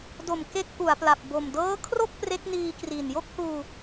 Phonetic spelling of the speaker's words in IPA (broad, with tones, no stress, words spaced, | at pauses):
do˨˩m ke˦˥k̚ʔu˩˦a̯pla˨˩p̚ bo˨˩mdɤː˦˥kʰro˥˩k̚ pre˦˥k̚niː˧ kriː˨˩njo˥˩k̚huː˧